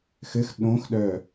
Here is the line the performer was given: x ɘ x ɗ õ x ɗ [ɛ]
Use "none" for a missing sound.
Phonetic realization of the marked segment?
œ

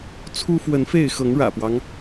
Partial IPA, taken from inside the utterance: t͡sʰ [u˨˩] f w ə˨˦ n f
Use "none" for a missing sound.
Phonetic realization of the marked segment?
u˦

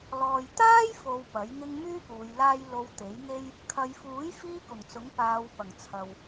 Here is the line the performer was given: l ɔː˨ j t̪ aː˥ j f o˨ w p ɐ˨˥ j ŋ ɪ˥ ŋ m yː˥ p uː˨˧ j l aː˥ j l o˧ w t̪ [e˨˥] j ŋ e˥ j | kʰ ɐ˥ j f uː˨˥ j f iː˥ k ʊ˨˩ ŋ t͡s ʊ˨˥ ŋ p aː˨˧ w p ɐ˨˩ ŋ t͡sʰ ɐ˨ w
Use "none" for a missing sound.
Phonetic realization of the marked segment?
e˨˥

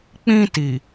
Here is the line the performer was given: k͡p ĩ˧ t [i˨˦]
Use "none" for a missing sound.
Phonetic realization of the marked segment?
i˨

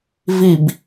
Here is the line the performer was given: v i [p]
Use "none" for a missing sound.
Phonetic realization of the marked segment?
b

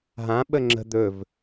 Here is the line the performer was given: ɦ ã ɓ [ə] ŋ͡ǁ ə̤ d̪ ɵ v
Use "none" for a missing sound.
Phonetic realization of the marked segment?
ə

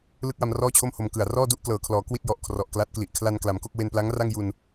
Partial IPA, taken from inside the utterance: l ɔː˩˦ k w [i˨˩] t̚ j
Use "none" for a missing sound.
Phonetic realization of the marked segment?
i˥˩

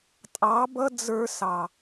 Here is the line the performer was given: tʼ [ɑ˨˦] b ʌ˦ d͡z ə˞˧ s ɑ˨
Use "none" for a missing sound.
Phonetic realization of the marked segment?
ɑ˨˦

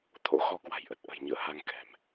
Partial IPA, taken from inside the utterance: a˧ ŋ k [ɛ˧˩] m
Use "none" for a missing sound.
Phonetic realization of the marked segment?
ɛ̤˨˩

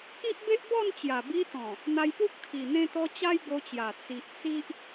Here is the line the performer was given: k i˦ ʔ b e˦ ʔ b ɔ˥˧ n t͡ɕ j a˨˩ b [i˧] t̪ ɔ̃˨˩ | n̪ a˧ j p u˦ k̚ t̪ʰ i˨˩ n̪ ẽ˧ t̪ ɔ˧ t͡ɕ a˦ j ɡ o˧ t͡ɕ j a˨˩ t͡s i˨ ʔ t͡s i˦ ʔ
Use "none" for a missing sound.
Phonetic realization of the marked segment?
i˧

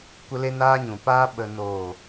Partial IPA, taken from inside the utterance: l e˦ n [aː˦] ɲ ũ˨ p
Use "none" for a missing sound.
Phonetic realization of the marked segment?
aː˦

